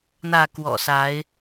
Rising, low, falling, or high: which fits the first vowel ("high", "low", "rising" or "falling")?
falling